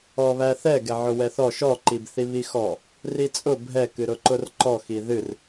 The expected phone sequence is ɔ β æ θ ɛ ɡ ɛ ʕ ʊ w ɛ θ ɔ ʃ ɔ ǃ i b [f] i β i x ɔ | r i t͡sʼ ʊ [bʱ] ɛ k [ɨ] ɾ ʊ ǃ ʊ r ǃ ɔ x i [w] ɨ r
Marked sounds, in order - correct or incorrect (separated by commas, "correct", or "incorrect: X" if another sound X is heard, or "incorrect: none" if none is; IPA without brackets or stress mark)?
incorrect: θ, correct, correct, incorrect: ð